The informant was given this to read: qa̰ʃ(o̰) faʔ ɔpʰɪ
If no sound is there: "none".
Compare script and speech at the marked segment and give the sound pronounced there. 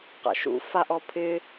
ṵ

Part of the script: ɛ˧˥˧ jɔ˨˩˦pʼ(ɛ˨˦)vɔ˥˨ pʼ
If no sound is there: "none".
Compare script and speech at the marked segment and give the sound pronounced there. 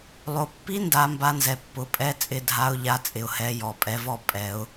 ɛ˨˦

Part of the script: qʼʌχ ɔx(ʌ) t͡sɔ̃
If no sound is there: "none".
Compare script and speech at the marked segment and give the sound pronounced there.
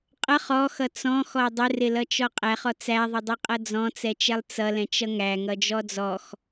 ʌ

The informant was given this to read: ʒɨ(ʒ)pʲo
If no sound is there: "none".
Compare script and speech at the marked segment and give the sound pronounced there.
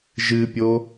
none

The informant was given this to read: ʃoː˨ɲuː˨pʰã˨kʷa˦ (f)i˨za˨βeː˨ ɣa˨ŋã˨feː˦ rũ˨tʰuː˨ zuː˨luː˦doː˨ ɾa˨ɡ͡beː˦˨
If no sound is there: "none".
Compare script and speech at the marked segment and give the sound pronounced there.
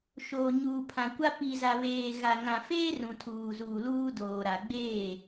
p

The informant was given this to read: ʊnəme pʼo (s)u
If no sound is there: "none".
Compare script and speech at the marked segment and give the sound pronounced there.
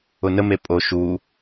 ʃ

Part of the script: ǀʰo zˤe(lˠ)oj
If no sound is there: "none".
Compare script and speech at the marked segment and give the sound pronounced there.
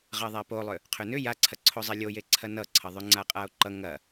lʲ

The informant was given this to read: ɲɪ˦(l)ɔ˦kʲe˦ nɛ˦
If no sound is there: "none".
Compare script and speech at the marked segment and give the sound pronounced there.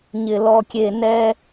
l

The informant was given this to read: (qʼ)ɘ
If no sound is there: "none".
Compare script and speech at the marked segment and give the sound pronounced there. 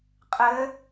qʼ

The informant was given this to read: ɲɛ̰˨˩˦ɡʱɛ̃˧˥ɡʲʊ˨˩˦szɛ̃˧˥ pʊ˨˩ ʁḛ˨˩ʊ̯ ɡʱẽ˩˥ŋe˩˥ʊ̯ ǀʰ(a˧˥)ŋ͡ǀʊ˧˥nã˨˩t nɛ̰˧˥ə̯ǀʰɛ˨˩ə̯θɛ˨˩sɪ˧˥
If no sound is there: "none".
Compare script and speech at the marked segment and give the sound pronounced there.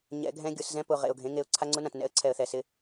a˧˥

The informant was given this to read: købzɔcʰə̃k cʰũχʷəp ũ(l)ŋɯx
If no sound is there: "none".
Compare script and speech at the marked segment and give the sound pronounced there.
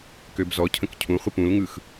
l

